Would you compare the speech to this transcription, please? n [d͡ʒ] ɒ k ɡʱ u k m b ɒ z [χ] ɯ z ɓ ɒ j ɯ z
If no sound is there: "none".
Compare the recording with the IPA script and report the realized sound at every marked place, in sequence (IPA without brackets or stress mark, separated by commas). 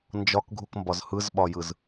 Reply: d͡ʒ, h